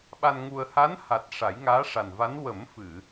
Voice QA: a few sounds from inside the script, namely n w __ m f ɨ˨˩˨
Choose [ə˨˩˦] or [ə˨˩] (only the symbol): ə˨˩˦